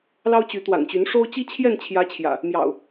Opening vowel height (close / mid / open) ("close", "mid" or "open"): open